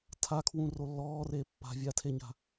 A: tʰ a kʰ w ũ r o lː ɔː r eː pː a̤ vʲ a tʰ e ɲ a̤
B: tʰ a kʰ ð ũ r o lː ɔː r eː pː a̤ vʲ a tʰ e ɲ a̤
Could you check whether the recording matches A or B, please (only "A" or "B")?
A